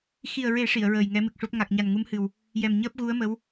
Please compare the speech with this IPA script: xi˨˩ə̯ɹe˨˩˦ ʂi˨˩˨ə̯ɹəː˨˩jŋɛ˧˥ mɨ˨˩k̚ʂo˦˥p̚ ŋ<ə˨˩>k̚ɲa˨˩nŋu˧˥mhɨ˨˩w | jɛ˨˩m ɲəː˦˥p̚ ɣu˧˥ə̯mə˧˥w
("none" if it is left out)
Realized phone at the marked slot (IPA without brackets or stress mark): a˨˩